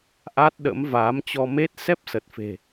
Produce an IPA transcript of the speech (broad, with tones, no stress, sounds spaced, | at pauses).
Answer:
ʔ a˦˥ t̚ ɗ ə̰˧˥ m v aː˨˦ m t͡ɕ ɔ˧ m e˦˥ t̚ s ɛ˦˥ p̚ s ə˨˩ t̚ f e̤˨˩